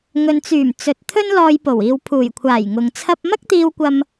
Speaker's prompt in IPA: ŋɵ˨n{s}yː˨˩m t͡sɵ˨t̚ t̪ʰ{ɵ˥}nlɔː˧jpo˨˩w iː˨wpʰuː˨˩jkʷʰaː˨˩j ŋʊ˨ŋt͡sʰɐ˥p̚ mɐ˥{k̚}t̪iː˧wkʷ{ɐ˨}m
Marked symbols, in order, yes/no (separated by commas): no, yes, yes, no